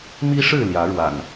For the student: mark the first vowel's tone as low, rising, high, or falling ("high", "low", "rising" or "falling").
high